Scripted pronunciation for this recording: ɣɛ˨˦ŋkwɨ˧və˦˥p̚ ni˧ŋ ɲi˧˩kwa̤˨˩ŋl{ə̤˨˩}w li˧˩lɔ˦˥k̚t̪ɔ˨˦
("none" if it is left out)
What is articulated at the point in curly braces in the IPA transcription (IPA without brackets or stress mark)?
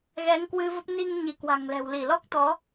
ɛ̤˨˩